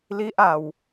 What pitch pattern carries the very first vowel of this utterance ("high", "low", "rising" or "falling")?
high